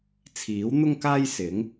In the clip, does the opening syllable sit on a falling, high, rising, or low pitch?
rising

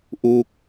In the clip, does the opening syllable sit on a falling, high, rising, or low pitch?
falling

